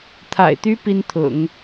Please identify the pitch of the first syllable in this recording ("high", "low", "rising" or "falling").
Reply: low